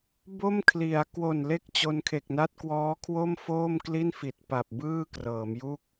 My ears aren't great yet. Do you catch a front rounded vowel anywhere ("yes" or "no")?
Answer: no